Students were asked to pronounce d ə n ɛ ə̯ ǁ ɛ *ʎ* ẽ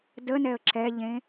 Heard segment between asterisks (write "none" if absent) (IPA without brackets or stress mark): ʎ